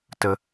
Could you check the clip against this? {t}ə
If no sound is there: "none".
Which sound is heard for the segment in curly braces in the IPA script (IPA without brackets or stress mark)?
t